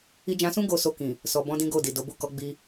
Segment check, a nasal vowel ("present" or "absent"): present